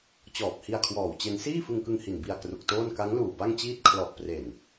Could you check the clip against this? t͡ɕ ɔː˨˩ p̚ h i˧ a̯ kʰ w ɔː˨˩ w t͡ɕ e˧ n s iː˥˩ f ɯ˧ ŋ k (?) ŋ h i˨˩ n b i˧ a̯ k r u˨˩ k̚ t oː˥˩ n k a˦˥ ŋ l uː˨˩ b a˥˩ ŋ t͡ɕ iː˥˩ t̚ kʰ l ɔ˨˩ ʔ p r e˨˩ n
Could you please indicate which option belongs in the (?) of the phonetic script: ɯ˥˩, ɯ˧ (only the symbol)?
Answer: ɯ˧